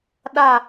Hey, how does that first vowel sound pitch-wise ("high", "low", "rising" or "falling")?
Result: falling